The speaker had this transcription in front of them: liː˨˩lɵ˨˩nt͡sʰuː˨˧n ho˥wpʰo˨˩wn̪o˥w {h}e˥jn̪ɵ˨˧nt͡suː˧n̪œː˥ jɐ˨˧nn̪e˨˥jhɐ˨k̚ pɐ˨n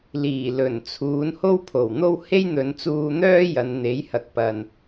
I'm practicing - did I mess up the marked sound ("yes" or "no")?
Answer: no